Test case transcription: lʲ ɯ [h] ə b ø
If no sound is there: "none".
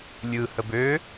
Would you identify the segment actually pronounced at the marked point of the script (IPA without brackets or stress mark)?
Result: h